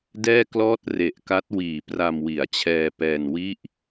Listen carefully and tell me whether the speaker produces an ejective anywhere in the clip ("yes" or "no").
no